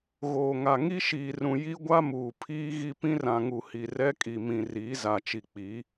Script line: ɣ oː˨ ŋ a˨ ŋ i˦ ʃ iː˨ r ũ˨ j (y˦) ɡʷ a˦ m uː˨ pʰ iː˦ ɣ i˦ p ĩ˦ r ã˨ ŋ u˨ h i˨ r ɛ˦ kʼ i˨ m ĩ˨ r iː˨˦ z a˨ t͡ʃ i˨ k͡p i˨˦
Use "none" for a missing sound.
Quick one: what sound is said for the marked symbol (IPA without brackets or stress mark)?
i˦